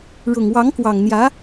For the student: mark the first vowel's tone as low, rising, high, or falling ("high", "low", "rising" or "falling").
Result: low